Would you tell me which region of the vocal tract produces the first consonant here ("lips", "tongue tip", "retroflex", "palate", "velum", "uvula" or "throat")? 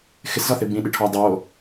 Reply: velum